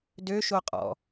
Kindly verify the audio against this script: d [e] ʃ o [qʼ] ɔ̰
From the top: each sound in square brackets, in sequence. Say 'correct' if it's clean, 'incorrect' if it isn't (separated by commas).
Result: incorrect, correct